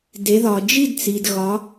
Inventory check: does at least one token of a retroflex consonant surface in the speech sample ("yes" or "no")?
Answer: no